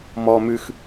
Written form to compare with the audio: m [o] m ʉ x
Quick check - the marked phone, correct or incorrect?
incorrect